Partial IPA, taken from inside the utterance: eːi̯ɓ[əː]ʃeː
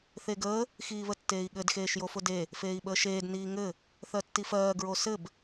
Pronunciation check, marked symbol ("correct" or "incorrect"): correct